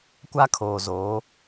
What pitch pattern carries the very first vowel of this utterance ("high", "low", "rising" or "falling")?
high